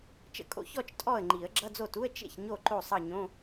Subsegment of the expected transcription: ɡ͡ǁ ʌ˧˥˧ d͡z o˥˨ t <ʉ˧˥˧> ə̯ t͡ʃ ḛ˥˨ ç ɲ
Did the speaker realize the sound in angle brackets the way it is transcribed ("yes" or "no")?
no